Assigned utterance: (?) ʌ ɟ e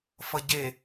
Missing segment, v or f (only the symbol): f